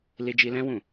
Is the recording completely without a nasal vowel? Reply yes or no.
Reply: no